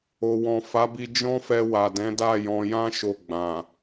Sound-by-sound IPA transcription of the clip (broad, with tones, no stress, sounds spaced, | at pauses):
o˨ w ɔ̃˨ f a˨˦ b i˧ d͡ʒ ɔ̃˦ f ɛ˧ w a˨ d ɛ̃˨˦ d a˦˨ j ɔ̃˧ j ã˦ ʃ o˦˨ ɡ͡b ã˨